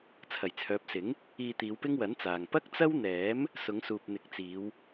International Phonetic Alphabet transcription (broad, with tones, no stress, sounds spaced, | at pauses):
t͡sʰ ɐ˨˩ j t͡sʰ œː˨˥ p̚ s ɪ˨˥ ŋ | iː˧ t̪ iː˨˧ w p ɪ˥ ŋ w ɐ˨˥ n t͡s aː˨ ŋ p ɐ˥ k̚ t͡s ɐ˥ w n̪ ɛː˨˥ m | s ʊ˨˧ ŋ s uː˨ p̚ n̪ ɪ˨˥ k̚ t͡s iː˨˧ w